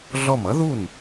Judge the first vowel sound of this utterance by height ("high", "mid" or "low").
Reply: mid